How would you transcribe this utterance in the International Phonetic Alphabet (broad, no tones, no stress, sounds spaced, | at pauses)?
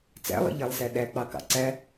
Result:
t͡s æ̰ lˠ ḭ ʎ æ lˠ s æ ɗ æ k͡p ɑ k ɑ̰ ǀ æ